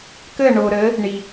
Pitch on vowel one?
falling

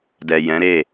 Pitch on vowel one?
low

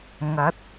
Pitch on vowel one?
rising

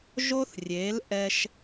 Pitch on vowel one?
high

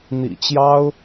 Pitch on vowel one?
low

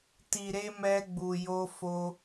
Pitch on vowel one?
low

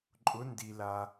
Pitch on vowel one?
rising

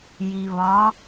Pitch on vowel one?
low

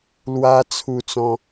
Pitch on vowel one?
high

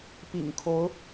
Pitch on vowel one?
low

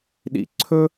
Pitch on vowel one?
falling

